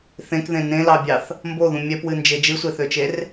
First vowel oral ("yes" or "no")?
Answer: no